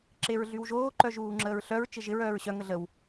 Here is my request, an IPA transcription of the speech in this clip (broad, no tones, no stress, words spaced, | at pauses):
ǁeɹɮywʒoː ǃœʒuːŋ͡ǁəːɹɬœɹ t͡ʃɪʒɪɹ œːɹɕœ ŋəɮəw